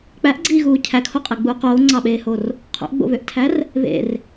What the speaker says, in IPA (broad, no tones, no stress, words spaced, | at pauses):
k͡pæʔɡ͡ǀiːɣuː cʰækʰoqʼeɡ͡buːq oːŋ͡ǀɑɓeːhor | qʰo̰ʔɡ͡bo̰βøʔtʰær | βḛr